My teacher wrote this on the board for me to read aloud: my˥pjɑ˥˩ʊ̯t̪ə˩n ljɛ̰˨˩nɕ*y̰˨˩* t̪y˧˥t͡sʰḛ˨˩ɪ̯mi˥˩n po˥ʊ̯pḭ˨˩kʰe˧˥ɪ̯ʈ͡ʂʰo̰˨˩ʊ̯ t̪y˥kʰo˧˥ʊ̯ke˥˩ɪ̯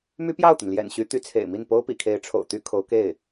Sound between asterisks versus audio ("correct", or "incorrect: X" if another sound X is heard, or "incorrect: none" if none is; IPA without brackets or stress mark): incorrect: y˧˥